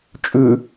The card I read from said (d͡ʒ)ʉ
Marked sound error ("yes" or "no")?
yes